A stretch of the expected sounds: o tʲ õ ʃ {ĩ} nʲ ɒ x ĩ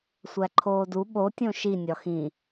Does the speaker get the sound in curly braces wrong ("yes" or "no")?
yes